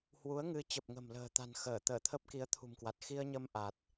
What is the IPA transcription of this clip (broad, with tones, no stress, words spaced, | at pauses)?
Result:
hwu˨˦ə̯ŋɨ˨˦ t͡ɕə˨˩p̚ŋə̤˨˩mlə̤ː˨˩t̪a̤˨˩n xəː˧˩ t̪əː˧˩t̪ʰə˦˥p̚ki˨˦ə̯ t̪ʰṳ˨˩mkwa˨˩t̚ xi˧ə̯ɲə˧m ʔa˨˩t̚